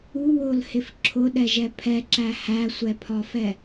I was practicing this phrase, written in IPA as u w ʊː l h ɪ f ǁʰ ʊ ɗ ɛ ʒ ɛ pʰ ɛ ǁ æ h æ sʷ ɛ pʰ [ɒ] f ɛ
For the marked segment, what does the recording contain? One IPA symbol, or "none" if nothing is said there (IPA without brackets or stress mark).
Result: ɒ